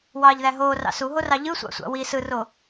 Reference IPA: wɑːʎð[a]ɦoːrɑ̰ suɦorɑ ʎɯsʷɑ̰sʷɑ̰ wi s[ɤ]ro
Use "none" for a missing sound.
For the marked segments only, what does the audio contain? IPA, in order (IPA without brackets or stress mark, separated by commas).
æ, ɯ